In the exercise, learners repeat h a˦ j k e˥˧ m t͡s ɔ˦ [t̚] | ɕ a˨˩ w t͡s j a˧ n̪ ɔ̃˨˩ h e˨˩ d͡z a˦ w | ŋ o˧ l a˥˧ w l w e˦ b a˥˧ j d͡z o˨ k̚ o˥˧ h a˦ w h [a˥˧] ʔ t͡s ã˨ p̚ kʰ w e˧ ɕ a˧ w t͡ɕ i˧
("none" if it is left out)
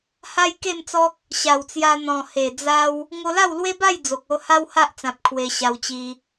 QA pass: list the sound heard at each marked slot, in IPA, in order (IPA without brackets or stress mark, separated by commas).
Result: k̚, a˦